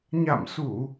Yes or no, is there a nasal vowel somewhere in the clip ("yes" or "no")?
no